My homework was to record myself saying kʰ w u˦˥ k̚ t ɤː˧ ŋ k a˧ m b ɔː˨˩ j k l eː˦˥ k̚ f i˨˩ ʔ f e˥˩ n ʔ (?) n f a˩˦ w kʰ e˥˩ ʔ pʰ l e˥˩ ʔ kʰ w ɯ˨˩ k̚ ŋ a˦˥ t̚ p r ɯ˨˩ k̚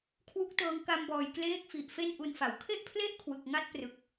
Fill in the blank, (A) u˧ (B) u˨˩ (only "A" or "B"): A